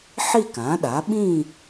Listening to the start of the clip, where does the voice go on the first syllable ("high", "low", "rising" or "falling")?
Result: falling